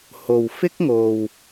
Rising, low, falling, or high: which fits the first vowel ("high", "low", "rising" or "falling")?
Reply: low